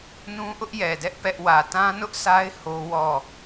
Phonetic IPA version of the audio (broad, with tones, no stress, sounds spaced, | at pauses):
n ũ˦ ʔ ʊ˦ ʔ j ɛ˨ d ɛ˦ ʔ p ɛ˦ ʔ w ä˨ t ã˦ n ʊ˦ ʔ sʰ a˦ ɪ̯ h o˦ w ɔ˦˨